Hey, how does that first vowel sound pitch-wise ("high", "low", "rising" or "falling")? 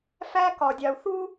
high